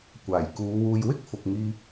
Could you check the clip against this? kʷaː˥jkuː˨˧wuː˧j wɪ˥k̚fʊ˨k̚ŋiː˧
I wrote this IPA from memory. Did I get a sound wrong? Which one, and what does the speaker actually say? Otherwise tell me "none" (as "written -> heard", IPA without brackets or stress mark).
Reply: aː˥ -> aː˨˩